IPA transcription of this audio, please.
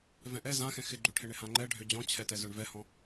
v ɛ̃ ʔ ɛ z ã x ɛ̃ x ɪ ɡ͡ǃ ø ʈʰ ɪ ɳ ɪ h ã ŋ͡ǃ ɛ ɖʱ ø d͡ʑ ɔ̃ t͡ɕʰ ɛ t ɛ z œ ɳ v ɛ h ɔ̃

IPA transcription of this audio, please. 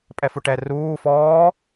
pʼ ɛ f u ʈ ɛ r uː f ɔː

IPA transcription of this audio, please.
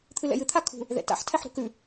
t̪ʰ ɨ l ɛ̰ j ɨ t̪ʰ a kʰ ṳ | ð ɛ̰ t a̰ ħ tʰ ɛ ħ ɾ ṳ k ʉ

